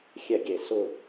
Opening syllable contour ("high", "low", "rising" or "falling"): falling